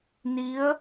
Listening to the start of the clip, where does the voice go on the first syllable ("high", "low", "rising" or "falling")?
rising